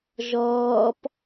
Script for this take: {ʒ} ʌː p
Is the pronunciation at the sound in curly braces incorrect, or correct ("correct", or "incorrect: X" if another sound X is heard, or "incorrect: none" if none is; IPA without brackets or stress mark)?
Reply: correct